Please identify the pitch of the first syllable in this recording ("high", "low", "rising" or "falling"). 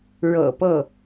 low